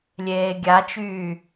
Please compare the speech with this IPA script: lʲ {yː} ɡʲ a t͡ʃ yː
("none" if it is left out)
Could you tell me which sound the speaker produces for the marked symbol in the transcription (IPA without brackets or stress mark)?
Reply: eː